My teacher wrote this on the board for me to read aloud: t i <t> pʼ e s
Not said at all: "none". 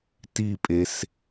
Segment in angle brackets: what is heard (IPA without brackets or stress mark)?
none